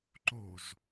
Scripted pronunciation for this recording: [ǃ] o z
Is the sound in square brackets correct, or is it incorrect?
correct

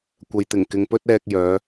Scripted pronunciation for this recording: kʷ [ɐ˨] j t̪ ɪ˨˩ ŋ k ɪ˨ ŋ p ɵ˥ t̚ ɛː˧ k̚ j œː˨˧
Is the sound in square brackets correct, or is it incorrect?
correct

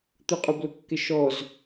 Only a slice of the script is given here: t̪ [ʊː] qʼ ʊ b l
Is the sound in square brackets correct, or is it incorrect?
incorrect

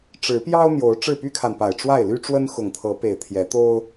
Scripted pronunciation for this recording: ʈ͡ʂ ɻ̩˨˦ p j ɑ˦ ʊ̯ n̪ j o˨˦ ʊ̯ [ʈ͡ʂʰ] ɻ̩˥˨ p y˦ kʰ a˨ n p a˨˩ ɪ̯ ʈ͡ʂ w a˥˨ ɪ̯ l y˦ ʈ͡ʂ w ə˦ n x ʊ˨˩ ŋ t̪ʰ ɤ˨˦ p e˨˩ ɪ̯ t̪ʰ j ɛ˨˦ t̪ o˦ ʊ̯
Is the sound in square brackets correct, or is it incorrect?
incorrect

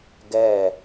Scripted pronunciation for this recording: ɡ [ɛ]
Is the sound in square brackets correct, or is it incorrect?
correct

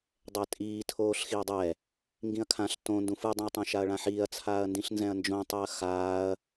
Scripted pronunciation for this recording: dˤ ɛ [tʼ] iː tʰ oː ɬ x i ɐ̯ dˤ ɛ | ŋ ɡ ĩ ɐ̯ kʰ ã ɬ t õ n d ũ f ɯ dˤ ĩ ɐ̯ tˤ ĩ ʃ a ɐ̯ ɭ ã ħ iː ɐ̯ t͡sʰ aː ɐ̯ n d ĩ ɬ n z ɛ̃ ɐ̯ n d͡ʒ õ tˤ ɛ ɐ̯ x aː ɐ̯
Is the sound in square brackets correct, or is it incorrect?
correct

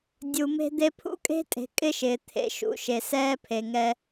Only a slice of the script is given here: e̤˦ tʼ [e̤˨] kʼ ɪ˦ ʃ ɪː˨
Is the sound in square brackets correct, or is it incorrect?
correct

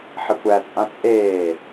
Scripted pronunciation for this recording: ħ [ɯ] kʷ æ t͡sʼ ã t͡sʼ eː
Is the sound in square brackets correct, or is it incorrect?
incorrect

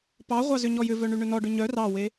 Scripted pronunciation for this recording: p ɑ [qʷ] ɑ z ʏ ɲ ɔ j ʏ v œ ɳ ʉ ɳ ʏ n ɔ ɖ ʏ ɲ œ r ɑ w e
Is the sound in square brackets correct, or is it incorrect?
incorrect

